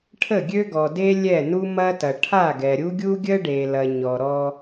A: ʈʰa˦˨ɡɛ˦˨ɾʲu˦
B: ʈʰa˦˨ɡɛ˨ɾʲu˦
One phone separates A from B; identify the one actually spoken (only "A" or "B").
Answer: B